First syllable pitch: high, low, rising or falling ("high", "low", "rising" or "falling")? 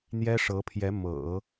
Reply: high